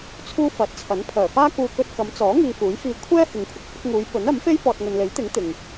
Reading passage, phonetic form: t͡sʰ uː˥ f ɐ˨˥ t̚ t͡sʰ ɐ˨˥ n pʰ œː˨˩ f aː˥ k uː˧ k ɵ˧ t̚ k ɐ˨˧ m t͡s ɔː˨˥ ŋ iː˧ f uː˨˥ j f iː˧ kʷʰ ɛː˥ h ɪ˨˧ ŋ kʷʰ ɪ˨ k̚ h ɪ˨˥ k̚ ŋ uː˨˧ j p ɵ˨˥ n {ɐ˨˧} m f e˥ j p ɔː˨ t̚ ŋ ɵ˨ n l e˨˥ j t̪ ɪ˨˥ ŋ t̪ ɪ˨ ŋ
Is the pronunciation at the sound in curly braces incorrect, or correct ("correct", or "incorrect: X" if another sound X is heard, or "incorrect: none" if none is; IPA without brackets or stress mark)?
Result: incorrect: ɐ˨˥